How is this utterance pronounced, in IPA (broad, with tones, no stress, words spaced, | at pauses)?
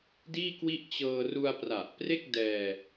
diː˥˩kwi˥˩ʔ t͡ɕɤː˧ru˧a̯pra˨˩ʔpre˥˩k̚ dɛː˧